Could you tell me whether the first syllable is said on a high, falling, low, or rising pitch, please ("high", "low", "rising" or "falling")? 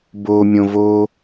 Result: low